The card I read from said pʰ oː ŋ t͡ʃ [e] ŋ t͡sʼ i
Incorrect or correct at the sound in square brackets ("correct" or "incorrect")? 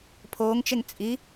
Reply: correct